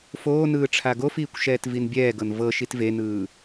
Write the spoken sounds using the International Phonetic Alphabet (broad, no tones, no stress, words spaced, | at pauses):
foːnɯː ʈ͡ʂʰaɡofiːkʷ ʃɛːtvinbʲɛːɡɤn vɤ ʃitvenɯː